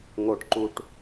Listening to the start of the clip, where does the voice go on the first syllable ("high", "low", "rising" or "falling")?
low